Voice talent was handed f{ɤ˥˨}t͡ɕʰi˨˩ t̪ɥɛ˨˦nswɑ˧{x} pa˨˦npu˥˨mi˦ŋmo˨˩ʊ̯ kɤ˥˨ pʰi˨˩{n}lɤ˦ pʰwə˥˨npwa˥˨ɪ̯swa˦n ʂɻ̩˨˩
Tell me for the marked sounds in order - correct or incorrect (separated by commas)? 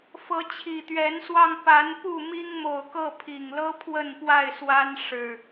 incorrect, incorrect, incorrect